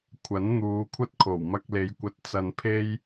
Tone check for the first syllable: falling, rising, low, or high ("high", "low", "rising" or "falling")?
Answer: rising